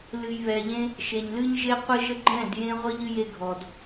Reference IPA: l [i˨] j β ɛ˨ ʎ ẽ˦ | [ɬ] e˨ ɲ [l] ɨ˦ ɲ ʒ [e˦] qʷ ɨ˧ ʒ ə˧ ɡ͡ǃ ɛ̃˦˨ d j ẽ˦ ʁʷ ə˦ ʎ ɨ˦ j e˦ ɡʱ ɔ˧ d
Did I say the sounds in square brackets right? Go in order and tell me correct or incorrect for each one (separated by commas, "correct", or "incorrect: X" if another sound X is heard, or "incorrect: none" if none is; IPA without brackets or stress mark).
incorrect: ɨ˨, incorrect: ʃ, correct, correct